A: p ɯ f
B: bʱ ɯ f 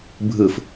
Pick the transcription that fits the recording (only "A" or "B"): B